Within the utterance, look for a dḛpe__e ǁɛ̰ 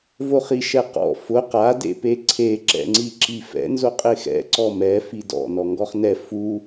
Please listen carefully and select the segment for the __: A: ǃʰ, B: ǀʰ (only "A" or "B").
B